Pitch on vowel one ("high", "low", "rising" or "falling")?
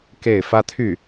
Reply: falling